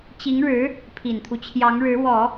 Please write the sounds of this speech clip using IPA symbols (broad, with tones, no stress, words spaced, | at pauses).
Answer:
t͡ɕi˧˥ŋɻɻ̩˧˥ | pʰi˨˩nt̪ʰu˦t͡ɕʰjɑ˧˥ŋɻɻ̩˧˥ wɔ˨˩˦